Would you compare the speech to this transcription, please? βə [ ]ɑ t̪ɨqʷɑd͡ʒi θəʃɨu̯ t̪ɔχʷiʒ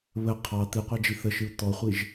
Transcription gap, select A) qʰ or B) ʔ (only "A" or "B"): A